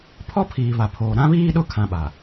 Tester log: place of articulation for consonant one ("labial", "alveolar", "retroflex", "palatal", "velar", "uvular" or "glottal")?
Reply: labial